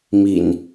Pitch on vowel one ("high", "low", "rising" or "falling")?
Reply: low